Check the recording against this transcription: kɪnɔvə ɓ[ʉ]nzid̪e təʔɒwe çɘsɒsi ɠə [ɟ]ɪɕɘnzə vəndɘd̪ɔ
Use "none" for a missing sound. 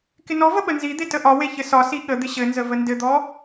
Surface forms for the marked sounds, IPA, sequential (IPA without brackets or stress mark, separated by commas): ə, d̪